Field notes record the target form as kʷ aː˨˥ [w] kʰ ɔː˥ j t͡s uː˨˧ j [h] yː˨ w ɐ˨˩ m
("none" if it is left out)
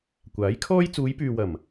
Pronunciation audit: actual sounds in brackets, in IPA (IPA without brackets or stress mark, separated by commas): j, p